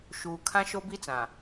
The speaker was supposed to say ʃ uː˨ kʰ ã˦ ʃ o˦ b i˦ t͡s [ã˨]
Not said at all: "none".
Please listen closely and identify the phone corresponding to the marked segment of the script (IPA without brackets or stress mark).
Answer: ã˨